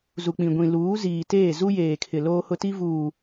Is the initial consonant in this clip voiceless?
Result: no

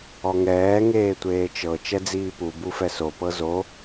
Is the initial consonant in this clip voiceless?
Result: no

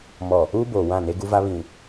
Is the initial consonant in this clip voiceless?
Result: no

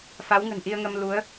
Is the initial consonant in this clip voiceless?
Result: yes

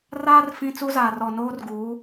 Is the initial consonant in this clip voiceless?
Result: no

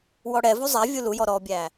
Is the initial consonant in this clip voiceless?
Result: no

